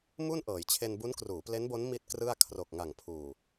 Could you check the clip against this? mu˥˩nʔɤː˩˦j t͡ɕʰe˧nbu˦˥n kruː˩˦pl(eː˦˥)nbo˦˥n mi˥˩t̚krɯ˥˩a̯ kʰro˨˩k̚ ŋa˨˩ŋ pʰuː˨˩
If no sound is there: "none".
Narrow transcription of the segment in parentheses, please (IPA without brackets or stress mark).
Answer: e˦˥